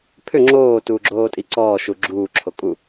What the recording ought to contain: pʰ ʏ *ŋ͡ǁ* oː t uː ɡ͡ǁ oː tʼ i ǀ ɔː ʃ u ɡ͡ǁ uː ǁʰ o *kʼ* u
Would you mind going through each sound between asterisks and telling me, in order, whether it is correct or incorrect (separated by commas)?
correct, correct